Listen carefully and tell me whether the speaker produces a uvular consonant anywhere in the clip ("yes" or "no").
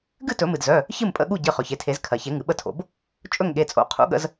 yes